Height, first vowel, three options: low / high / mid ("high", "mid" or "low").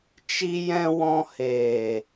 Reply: high